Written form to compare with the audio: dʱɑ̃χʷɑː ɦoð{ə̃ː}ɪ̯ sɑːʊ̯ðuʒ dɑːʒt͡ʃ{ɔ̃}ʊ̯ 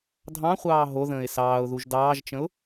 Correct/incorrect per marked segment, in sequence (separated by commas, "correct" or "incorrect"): correct, incorrect